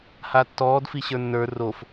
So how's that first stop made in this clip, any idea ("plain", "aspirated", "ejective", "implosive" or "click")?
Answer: plain